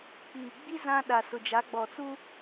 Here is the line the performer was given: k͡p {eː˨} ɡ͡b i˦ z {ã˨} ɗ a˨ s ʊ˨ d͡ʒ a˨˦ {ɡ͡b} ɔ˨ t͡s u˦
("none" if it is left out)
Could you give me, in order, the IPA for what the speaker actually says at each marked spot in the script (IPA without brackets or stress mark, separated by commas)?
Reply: iː˨, ã˦, ɡ͡b